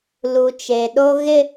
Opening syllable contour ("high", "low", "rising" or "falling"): low